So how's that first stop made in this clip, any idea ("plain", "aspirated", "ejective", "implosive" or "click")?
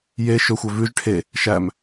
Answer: aspirated